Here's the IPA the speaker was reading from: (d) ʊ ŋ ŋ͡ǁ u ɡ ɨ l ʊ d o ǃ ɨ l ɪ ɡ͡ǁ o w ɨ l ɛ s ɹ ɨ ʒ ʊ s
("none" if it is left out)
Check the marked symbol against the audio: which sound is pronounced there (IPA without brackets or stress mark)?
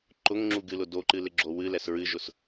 ǃ